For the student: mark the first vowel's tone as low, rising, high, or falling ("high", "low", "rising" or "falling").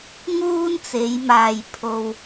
high